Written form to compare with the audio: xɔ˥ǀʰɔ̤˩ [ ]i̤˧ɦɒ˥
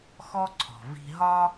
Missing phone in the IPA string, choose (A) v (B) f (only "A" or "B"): A